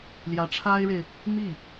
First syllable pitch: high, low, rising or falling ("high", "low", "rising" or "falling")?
rising